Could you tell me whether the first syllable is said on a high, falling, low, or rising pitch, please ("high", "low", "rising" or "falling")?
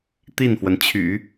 falling